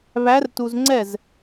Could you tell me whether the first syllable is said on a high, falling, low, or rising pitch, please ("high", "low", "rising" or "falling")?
rising